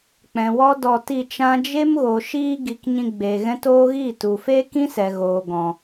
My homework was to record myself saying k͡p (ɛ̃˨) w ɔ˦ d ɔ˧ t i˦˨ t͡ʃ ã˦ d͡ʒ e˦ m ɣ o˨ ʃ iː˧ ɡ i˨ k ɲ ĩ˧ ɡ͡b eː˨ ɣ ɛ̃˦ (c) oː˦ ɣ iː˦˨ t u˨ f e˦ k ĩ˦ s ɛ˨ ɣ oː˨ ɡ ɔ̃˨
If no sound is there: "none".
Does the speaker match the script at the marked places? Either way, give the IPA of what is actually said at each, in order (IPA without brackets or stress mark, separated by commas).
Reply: ɛ̃˨, t